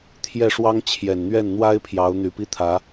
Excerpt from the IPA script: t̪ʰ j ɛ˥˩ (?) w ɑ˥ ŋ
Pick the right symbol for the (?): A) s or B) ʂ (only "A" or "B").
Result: B